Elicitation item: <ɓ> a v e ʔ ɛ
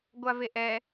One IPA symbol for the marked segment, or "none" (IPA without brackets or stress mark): ɡʷ